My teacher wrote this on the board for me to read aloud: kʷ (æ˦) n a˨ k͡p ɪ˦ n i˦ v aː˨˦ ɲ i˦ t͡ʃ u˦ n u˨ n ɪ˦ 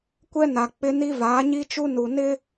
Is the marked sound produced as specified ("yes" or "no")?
no